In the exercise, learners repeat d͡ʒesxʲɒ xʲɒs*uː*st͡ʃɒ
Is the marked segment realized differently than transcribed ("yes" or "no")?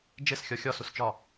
yes